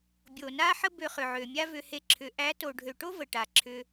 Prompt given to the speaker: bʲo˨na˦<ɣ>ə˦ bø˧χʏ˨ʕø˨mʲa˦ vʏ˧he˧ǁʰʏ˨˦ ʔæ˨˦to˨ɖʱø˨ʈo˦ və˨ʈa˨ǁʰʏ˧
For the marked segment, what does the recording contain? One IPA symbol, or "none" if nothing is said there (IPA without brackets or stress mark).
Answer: ħ